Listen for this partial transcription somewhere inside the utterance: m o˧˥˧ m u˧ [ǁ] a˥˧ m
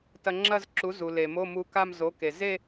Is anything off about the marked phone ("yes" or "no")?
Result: yes